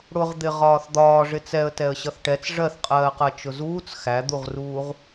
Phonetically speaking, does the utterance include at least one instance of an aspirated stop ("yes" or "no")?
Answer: no